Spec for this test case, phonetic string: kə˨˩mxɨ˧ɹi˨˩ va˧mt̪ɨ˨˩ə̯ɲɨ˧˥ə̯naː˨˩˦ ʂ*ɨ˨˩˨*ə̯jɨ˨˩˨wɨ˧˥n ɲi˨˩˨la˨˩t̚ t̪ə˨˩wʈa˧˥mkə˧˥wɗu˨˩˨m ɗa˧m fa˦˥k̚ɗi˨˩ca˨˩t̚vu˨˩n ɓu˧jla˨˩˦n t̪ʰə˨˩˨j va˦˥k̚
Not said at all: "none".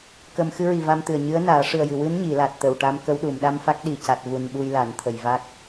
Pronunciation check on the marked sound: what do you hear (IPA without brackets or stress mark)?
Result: ɨ˨˩